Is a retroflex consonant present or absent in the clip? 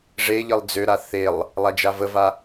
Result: present